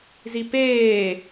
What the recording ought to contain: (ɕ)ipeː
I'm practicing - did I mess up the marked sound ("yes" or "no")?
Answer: yes